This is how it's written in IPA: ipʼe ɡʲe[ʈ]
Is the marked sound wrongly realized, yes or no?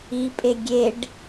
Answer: yes